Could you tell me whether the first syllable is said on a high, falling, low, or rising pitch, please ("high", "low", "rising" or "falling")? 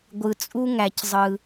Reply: low